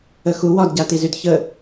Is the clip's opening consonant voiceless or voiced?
voiceless